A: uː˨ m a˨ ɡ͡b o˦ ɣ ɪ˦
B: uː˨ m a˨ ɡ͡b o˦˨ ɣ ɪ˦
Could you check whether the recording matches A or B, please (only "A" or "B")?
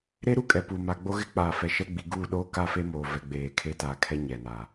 A